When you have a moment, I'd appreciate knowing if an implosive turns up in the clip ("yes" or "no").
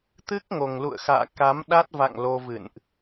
yes